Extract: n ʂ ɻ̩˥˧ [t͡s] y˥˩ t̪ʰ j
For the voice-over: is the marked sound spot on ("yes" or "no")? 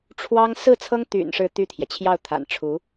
no